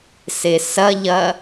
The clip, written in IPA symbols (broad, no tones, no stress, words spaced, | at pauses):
sesɐʎɐ